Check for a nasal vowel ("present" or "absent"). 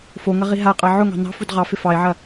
absent